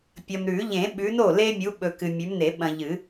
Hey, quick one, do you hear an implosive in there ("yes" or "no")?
yes